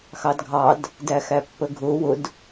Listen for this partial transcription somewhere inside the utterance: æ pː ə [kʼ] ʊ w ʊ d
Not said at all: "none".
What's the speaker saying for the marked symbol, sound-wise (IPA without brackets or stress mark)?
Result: ɡʱ